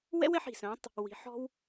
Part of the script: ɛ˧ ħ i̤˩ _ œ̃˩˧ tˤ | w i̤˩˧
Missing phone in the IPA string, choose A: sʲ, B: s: B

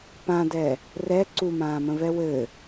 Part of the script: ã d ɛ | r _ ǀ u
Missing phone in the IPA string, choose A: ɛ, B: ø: A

